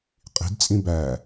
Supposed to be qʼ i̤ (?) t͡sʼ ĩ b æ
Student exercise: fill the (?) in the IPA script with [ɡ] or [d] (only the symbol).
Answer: d